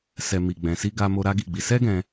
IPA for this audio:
s ɛ˨ m i˨ ɡ͡b ɛ̃˨ s i˧ ɡ a˧ m o˧ ɾ a˦ ɡ i˦˨ ɡ͡b i˧ s ɛ˦ ɡ ɛ̃˧

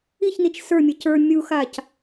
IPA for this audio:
i ç n i t͡ʃ s ə˞ mʲ ɘ c ə˞ mʲ u x a c

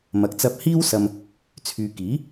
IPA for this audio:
m ɐ˨ k̚ t͡s ɐ˧ p̚ h iː˥ w s ɐ˧ m | t͡sʰ yː˨ k iː˨˥

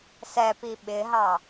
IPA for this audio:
s ɛ p i ɓ ɪ ɦ ɑ

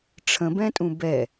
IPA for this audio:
ʈ͡ʂʰ ə̃ b ɛ̃ tʼ ũ b ɛ

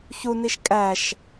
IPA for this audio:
ç u n i ʃ kʼ æ ʃ

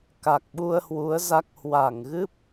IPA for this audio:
k a˨˩ k̚ ɓ u˧ ə̯ h w u˨˦ ə̯ z a˦˥ k̚ h w a˧˩ ŋ ɣ ɨ˦˥ p̚

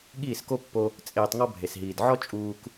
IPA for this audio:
ɠ iː˦˨ s k o˦ pː o˧ | t͡sʼ eː˧ tˤ ŋ ɔ˦ bʱ e˨ s ɦ iː˨ d ʕ ɔ˦ t͡ʃʼ uː˧ k

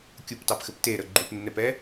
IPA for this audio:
kʲ u p t ɑ p x ɘ p t e ɾ ə ɡ͡ǃ u p nː ɛ p ɛ

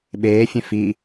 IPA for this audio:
ɓ eː fʲ ẽ f i

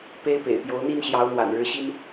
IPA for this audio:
p e˥ ɪ̯ p ḛ˨˩ ɪ̯ p j o˧˥ ʊ̯ n̪ i˥ n ɕ j ɑ˧˥ ʊ̯ n̪ w a̰˨˩ n ɻ ɻ̩˧˥ ɕ i˥ n

